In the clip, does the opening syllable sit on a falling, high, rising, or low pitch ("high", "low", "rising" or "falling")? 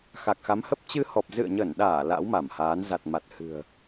low